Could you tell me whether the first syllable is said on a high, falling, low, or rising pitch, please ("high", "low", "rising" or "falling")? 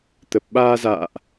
low